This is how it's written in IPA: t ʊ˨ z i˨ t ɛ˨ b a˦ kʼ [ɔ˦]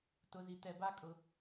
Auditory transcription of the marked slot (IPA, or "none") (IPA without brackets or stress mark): ʊ˦